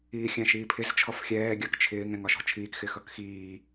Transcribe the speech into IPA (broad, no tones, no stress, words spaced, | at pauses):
iːxʲæ̃ʃiːpʰɪz t͡ʃʰɔfxʲɛː ɡʲɜkt͡ʃʰɪːŋ ɛ̃ŋɒʃɔ̤t͡ʃʰiːk xɪxʌkxiː